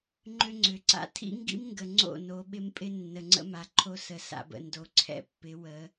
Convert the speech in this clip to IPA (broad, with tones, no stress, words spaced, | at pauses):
ŋ͡ǃʏ˦ŋ͡ǀʏ˨˦ǀa̰˦ tʰḭ˦ŋɡḭ˦mŋɡə˨ ŋ͡ǀo̰˦˨no˨˦ ɓɪ˦mpʼɪ˦ nːə˨ŋ͡ǀə̰˦ma˨ǃʰo˦ sə˨sa̰˨bə̰˨ ndo˨ǀʰɛ̰˦pːɪ˨˦ wə˨˦